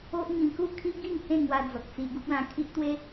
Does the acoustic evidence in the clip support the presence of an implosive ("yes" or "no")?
no